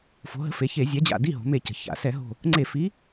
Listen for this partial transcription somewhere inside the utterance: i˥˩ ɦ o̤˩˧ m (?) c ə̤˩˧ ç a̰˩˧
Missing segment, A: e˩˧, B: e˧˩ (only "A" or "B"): B